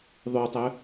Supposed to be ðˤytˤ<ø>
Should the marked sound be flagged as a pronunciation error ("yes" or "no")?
no